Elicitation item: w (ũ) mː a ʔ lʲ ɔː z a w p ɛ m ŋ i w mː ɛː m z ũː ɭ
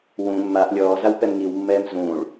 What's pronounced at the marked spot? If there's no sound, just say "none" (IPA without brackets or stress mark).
ũ